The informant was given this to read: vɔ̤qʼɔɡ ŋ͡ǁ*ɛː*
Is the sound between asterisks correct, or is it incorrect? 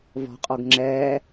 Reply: correct